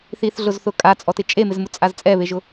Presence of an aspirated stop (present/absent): absent